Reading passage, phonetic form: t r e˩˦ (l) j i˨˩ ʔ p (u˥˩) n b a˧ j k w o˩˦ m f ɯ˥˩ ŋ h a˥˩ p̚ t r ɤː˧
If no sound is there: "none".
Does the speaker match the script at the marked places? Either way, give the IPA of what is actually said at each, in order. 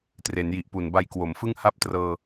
n, u˨˩

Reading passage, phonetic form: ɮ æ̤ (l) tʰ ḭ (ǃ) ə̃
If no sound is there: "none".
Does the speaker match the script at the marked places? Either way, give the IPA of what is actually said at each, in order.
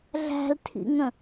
l, ŋ

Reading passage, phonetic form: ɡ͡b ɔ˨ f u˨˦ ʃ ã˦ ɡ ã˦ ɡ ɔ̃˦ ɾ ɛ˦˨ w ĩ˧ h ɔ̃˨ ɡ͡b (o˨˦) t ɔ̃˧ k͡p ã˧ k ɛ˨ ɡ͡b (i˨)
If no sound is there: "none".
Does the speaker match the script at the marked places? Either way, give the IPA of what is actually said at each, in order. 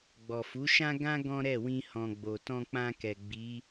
o˨, i˨˦

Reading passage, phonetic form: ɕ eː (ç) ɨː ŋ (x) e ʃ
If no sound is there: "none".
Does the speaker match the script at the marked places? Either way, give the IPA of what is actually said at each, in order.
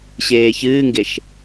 ç, ɡ

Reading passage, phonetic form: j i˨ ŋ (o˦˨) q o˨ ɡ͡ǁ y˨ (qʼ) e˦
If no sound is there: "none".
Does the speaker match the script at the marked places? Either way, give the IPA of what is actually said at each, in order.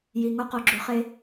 o˦, χ

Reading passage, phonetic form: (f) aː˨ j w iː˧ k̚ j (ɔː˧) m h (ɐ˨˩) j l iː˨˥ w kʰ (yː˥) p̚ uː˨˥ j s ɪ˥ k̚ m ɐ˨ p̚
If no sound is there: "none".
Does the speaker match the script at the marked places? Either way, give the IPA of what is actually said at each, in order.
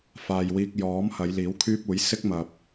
f, ɔː˨˥, ɐ˨˧, yː˥

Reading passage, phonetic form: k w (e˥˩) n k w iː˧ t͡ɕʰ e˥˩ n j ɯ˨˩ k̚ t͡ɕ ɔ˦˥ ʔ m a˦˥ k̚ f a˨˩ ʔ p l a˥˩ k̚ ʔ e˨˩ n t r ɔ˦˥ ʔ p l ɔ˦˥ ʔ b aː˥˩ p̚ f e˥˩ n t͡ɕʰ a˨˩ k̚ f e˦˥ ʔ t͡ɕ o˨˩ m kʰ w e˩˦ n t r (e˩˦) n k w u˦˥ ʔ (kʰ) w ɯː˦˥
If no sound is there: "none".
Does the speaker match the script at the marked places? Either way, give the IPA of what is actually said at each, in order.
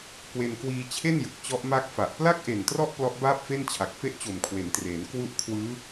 e˧, eː˩˦, kʰ

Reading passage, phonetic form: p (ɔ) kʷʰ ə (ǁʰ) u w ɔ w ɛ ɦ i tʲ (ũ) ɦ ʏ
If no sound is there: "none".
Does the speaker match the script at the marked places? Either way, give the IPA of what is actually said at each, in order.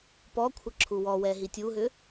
ɔ, ǁʰ, u

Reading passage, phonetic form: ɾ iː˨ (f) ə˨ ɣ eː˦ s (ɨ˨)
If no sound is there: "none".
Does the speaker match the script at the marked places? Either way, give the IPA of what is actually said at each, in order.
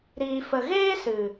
f, ɨ˨

